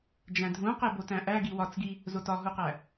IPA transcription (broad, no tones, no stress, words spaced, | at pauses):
d͡ʒæ̃dʱũqe botæ̃ʔæɡi wɒt͡sɡi | zotɒɦuqæ